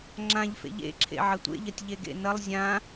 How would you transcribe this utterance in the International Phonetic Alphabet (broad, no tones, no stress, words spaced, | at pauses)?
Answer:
ŋ͡ǁãʎfḛ ʎḛǁʰḛ ʕɐtʷḛʎɐtʲ ʎeɡḛnɐlˠ zʲã